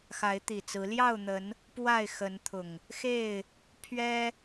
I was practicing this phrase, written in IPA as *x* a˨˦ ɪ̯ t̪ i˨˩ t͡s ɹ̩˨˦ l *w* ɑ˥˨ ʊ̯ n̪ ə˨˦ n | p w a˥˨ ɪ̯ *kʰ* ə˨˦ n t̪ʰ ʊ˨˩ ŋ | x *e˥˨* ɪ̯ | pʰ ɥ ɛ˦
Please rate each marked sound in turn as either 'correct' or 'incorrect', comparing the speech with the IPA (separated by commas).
correct, incorrect, incorrect, correct